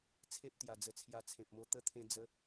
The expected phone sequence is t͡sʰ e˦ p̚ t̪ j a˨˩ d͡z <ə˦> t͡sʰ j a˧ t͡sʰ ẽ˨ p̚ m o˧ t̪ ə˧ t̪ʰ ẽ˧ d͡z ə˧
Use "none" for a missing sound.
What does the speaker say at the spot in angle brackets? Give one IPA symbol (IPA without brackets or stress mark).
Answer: ə˨˩